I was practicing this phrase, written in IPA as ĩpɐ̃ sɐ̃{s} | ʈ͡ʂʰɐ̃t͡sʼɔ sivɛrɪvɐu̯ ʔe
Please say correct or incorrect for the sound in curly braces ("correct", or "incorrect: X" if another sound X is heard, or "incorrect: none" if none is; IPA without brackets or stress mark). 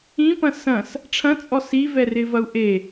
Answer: correct